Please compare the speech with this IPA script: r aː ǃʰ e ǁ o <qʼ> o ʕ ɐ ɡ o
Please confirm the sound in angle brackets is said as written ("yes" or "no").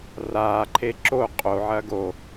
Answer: yes